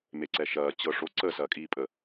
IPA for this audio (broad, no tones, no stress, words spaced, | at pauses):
meǀɛʃɐː t͡ɕɤʂo ǀə sɐːkʼiːpʼə